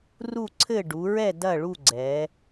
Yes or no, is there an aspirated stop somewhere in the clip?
yes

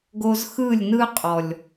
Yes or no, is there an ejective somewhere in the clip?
yes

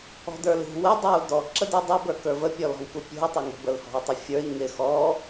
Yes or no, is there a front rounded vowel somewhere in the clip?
no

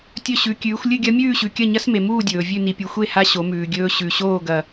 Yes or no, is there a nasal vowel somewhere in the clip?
no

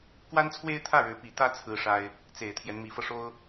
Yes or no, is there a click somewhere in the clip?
no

